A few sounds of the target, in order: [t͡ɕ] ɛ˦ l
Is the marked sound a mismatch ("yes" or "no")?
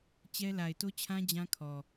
no